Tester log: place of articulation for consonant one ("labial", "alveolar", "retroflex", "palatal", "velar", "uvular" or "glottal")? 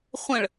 uvular